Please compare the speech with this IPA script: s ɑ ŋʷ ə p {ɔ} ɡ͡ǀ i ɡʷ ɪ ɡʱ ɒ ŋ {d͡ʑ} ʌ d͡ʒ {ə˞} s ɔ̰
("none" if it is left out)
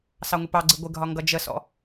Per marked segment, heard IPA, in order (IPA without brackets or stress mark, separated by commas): ɑ, ɡ, ə